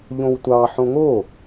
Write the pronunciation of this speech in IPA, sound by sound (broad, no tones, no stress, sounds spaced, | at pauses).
ʎ õ w tʷ ɑ ħ õ ŋ o